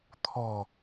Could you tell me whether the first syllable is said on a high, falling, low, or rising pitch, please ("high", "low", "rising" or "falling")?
low